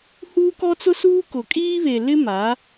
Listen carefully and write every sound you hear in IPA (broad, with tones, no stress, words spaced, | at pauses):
huː˦kɔ˦t͡sʊ˦suː˦ kʊ˨kʼiː˦βe˨lɪ˦ ma˨˦